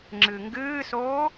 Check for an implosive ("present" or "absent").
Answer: absent